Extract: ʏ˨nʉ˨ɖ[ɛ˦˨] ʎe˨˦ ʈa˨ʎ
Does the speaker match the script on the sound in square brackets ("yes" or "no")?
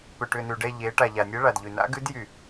yes